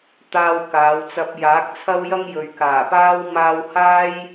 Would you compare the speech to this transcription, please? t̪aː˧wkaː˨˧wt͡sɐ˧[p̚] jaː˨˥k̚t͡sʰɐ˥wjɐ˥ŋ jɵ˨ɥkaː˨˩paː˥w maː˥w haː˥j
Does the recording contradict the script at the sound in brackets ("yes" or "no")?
no